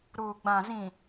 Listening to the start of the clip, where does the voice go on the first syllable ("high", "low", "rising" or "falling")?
low